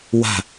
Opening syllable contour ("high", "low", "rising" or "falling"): falling